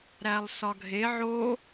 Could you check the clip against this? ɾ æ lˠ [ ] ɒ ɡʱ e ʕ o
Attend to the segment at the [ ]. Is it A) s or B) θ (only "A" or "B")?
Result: A